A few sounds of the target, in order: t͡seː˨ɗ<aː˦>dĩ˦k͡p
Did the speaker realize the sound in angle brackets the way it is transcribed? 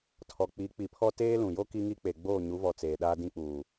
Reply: yes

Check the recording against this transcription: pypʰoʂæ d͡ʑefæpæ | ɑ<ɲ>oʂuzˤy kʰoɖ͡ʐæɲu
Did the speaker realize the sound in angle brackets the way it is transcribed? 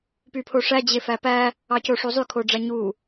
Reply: no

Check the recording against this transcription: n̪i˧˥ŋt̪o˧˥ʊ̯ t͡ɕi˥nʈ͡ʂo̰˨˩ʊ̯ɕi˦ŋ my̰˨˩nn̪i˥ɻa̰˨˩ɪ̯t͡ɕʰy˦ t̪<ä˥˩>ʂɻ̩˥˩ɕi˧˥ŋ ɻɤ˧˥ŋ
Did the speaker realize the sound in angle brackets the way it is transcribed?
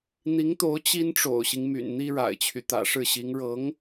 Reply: no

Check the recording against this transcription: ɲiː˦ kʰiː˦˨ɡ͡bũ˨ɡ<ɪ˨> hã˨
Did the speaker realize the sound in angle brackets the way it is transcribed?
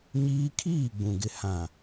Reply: yes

